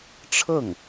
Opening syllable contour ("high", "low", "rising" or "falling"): falling